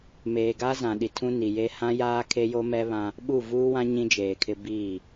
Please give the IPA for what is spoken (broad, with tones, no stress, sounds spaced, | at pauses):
m eː˨ ɡ a˦ z ã˨ ɗ i˨ tʰ ũ˦ n i˨ j e˦ h ã˦ j aː˦ kʰ e˦ j o˦ m ɛ˦ β ã˦ | ɓ u˦˨ v uː˦ w ã˦ ɲ ĩ˦ d͡ʒ eː˨ kʰ ɪ˦ b iː˦˨